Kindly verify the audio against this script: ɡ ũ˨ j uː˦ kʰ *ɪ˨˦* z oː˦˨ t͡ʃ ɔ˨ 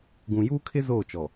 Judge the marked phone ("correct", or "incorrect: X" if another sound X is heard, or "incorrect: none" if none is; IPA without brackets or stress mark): incorrect: ɪ˦